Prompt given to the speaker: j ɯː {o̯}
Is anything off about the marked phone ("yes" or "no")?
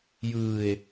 yes